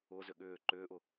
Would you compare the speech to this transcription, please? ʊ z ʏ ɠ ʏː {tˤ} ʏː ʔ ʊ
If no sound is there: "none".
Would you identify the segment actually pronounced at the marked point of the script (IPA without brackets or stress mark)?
ǃ